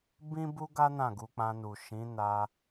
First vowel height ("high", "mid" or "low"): high